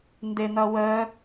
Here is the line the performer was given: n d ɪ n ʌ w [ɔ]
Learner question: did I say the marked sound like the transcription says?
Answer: no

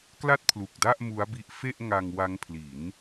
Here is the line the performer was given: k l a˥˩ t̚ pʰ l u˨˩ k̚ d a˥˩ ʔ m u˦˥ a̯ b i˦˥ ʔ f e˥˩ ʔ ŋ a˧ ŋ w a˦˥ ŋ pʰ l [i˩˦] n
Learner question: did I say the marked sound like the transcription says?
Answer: yes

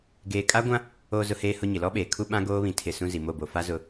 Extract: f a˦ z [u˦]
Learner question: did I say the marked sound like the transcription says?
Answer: no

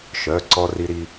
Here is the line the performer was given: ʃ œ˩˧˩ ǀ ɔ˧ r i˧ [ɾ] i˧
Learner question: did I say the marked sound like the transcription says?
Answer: yes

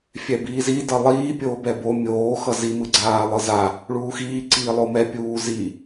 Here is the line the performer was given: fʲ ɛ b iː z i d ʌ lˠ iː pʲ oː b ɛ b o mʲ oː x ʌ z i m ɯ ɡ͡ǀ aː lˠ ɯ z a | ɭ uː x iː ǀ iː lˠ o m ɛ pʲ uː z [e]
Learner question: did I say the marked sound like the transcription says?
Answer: no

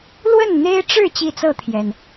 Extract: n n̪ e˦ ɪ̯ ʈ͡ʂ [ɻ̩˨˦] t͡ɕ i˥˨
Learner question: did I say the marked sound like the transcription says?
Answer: no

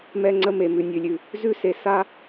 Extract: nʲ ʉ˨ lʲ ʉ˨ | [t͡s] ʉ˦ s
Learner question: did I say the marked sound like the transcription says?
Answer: no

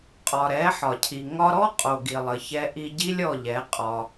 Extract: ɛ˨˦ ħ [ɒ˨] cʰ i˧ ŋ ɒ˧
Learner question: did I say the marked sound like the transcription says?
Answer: yes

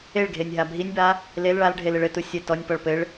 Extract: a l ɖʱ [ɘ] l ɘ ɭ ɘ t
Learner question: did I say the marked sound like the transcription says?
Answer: no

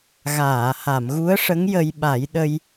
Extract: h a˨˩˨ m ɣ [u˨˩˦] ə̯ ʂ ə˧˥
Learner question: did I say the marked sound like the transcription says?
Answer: no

